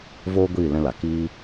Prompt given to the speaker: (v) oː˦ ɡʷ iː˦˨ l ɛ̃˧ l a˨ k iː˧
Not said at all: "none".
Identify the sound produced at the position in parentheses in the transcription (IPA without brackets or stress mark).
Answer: v